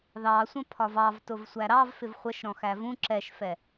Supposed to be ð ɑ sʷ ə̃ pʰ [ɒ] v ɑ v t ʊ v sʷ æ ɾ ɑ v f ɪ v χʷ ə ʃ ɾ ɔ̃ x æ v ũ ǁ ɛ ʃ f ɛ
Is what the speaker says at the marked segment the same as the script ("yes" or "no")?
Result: yes